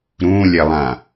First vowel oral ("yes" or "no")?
no